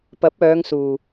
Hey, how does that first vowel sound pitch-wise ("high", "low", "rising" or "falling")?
rising